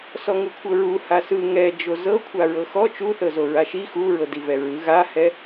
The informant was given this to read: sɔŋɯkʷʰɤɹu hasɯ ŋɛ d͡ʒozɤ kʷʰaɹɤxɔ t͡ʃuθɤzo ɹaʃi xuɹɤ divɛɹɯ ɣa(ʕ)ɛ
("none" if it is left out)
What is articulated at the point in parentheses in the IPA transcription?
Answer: h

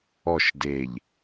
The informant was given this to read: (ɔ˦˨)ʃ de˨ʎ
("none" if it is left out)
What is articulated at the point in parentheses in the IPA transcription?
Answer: ɔ˦˨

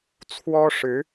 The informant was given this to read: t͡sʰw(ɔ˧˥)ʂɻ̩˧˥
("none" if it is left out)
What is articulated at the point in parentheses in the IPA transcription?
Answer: ɔ˥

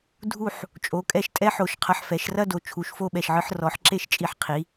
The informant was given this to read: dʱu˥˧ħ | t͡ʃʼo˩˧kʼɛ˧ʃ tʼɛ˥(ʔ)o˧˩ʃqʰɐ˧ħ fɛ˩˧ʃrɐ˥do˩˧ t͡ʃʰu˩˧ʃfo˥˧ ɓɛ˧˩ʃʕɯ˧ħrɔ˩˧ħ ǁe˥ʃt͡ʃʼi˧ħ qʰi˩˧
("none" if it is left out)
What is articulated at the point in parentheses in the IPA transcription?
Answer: ħ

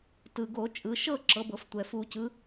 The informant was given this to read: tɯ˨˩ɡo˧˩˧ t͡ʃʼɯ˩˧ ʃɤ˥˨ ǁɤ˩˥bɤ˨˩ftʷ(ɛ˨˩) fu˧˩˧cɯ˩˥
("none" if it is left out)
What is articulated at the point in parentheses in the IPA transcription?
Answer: ɛ˨˩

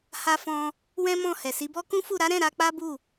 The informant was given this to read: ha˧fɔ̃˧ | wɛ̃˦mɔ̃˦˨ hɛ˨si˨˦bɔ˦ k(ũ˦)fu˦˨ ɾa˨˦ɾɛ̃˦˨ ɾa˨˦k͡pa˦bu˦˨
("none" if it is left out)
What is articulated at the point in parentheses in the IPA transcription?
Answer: ũ˦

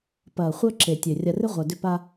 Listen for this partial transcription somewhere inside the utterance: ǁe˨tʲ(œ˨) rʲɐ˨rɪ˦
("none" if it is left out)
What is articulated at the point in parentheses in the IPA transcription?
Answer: ø˨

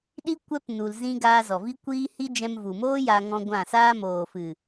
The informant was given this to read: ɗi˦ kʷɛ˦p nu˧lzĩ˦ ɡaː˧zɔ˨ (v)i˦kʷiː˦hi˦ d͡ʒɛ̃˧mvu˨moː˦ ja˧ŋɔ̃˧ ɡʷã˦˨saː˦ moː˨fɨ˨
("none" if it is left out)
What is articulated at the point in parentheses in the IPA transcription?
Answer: v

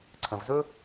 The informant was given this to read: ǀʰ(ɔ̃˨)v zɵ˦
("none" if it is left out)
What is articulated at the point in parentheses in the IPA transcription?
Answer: ə̃˨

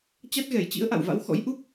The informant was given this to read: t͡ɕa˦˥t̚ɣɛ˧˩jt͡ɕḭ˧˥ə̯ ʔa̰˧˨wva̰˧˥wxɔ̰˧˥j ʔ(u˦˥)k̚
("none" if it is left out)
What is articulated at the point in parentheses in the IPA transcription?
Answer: u˦˥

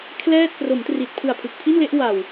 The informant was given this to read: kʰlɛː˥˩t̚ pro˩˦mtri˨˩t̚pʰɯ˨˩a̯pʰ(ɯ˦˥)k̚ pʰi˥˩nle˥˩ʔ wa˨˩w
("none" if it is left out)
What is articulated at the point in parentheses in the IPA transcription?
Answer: ɯ˨˩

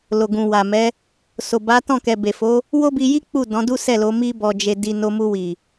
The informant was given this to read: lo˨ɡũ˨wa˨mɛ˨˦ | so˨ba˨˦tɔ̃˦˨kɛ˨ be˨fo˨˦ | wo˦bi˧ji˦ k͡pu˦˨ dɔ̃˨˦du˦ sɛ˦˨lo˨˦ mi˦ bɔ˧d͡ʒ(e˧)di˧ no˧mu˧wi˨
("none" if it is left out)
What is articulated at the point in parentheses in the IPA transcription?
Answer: e˧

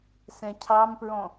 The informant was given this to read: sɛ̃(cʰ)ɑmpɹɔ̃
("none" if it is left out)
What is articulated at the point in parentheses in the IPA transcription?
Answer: cʰ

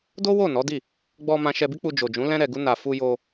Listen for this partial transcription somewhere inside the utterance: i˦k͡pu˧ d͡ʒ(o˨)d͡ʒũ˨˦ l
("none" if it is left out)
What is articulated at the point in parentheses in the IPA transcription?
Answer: o˨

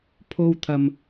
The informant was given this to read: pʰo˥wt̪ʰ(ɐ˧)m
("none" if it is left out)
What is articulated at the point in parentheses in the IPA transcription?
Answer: ɐ˧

